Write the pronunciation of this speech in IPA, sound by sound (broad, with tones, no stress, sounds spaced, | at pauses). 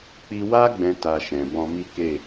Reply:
k͡p i˧ w a˦ ɡ͡b ɛ̃˦ t a˧ ʃ ɛ̃˨ b ɔ̃˧ m i˦ k e˦˨